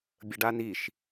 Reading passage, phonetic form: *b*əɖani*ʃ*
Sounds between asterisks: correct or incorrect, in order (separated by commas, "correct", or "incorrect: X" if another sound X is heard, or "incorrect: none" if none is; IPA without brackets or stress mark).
incorrect: bʲ, correct